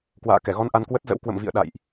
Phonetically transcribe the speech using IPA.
k w a̰ː˧˨ k ɛ˧˩ ɣ ɔ˧ n ʔ a˧ n k w ə˦˥ t̚ z ə̰˧˥ w k w ə̰˧˨ m v ḭ˧˨ ə̯ ɗ a̰˧˨ j ʔ

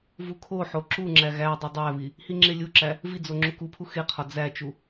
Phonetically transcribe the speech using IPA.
v u kʰ o ħ o ǁ u ŋ͡ǁ æ ɣ æ dˤ o dˤ æ β i | h i ŋ͡ǁ e lʲ u ǁ æ | v i d͡z o ŋ͡ǁ u k u pʰ u x e qʰ ɒ d͡z æ t͡ʃ u

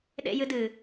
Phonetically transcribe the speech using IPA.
ɗ ḛ j ɨ d ɨ

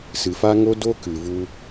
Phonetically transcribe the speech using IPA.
s ɨ˨ f a˧ ŋ o˦ d o˧ k ɨ˨ v u˧

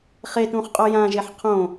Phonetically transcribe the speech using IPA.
χ e t ũ χ qʼ o j ã ʒ e ħ qʰ õ

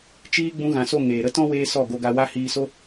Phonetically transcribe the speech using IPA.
t͡ʃ iː˧ ɡ͡b ũ˧ ɣ ã˨ s o˦˨ ŋ eː˨ ɾ ə˦ t ɔ̃˦ w eː˧ s ɔ˦˨ ɡ o˧ ɡ a˧ w a˦ h iː˧ s o˦

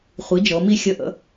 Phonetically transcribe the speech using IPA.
χʷ i˩˥ d͡ʒ ɤ˩˧ m i˥˧ xʲ ə˥˧ ʔ ə̰˥

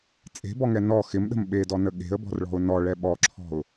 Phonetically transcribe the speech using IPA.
t͡sʼ e̤ b ɔ ŋ ɛ n ɔ x ɪ m ɗ ə̤ m ɓ e d ɔ n ə ɠ e̤ ə̯ b ɔ̤ r ɭ ɔ̤ ʊ̯ n ɔ ɭ ɛ ɓ ɔ ǁʰ ɔ̤ ʊ̯

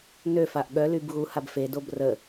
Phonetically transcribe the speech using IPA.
n ø f a ʔ ɠ œ l y b ɣ u h a b f e d o b r ə

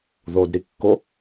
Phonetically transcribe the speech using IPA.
ð o d ɾ i kː o

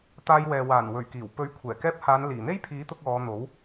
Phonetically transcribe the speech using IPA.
t̪ aː˧ j w ɛː˨ w aː˨˩ n w ɵ˨˩ ɥ k iː˨˩ w p ɵ˨˥ ɥ kʷʰ ɛː˨˩ k ɛː˧ p̚ h aː˨˧ n l iː˨˩ n̪ e˥ j pʰ iː˨˥ t̪ ʊ˧ k̚ ɔː˨˧ n̪ o˨˥ w

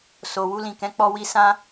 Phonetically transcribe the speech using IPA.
s o˨ w u˧ l ĩ˨ k ɛ̃˨˦ k͡p ɔ˧ w i˧ s ã˦

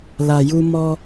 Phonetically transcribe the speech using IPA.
l a˨ j u˧ m ɔ˦

